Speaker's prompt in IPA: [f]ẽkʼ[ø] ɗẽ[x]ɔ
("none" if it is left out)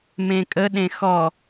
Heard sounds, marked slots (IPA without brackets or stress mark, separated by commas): m, ə, x